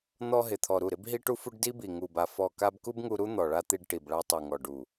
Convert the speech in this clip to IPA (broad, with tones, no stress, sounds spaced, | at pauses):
n̪ ɔ˧ ɦ ɪ˨ t̪ʰ ɔ˨ ɾ u˦˨ ɾ ɪ˦ b ɦ i˧ ʈ u˧ f u˧ ɖ d i˦ b i˨ ŋ u˨ b a˨ f ɔ˨ k a˧ b k u˦ b ŋ u˧ ɾ u˦ n̪ ɔ˨ ɭ a˦ t̪ i˧ ɖ ʈ i˨ b ɭ a˧ tˤ u˨ ŋ ɔ˨ ɖ u˨